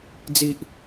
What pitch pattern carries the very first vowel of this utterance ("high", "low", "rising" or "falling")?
low